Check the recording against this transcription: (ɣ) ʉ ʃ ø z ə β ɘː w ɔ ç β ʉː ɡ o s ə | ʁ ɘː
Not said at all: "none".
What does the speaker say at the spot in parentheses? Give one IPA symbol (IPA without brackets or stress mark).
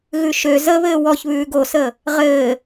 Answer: ɣ